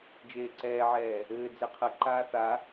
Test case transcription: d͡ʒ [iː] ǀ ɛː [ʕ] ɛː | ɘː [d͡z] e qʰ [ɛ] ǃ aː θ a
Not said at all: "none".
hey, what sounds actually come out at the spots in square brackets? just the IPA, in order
eː, ʕ, d͡z, ɘ

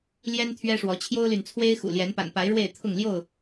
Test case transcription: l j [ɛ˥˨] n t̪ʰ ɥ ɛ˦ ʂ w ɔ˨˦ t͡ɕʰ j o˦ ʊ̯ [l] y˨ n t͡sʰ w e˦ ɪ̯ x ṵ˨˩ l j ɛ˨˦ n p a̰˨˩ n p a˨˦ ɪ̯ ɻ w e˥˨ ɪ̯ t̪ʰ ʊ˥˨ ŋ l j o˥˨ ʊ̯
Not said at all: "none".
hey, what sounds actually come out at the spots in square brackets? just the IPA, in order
ɛ˦, l

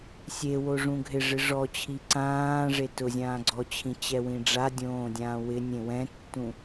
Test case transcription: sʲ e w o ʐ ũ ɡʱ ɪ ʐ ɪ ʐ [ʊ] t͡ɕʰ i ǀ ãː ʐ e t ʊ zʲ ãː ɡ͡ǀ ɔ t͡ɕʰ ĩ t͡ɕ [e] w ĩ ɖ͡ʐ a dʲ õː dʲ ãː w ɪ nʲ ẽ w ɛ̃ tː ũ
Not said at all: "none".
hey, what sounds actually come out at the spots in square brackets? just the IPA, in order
ɔ, ɛ

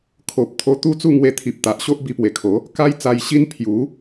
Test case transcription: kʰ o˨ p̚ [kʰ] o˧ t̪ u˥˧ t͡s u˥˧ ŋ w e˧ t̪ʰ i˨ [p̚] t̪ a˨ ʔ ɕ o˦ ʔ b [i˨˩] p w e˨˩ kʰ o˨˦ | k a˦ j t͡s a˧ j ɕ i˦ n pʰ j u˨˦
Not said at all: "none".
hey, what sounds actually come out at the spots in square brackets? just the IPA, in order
t̪ʰ, p̚, i˧

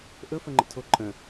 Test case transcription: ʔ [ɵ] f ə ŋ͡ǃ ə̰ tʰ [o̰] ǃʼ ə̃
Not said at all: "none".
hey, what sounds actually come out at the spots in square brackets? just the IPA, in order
ɵ, o

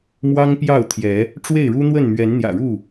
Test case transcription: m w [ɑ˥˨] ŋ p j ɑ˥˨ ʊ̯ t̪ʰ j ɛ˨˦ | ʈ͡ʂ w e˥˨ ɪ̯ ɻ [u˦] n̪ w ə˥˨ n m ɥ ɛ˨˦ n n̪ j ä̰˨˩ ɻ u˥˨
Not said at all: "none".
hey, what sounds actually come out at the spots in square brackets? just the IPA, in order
ɑ˦, u˦

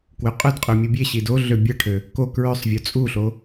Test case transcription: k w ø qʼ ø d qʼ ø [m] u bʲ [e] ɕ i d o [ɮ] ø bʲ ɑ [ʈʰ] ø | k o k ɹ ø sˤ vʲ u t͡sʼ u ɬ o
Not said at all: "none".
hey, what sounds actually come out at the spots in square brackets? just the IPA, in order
mʲ, e, ɮ, ʈʰ

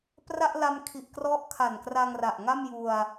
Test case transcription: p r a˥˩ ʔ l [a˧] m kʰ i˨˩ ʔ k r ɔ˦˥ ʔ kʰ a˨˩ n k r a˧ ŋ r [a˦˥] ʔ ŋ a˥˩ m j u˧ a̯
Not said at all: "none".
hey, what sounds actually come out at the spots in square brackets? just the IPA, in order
a˧, a˨˩

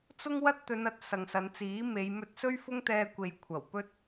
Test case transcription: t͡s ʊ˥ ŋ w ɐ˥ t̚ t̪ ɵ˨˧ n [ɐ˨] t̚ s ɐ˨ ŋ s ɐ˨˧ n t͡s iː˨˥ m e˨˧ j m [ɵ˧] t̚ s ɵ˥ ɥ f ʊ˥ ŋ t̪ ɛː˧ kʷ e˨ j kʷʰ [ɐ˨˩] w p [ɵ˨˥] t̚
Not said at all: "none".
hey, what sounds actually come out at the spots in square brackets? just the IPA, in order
ɐ˨, ɵ˧, ɐ˨˩, ɵ˥

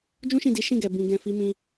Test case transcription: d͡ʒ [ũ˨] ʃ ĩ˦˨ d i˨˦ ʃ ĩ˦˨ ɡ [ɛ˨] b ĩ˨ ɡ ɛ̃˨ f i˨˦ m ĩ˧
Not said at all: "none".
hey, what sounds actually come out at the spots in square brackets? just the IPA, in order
ũ˦, ɛ˨

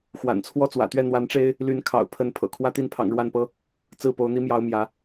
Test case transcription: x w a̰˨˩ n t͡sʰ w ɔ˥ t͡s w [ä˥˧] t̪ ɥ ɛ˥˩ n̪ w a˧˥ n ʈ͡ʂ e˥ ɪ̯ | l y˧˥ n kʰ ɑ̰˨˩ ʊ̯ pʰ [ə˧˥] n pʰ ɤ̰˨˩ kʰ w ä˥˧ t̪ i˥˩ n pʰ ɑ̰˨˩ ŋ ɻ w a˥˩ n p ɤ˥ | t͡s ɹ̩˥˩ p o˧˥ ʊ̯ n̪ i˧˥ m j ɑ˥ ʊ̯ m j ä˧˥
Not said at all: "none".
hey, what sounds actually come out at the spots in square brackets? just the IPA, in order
ä̰˨˩, ə˧˥

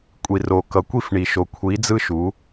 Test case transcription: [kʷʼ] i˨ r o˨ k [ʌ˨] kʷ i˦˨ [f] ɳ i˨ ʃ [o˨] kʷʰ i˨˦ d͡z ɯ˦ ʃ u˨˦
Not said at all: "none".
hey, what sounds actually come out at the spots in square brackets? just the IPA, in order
kʷʼ, ʌ˨, f, o˨

